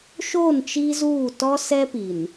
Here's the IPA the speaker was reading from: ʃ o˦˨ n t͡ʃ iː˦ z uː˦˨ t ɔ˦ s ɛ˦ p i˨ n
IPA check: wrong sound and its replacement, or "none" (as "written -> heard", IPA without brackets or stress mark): none